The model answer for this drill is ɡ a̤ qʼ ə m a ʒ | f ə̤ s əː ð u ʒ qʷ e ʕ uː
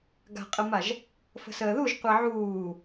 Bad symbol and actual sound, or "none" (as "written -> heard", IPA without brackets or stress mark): none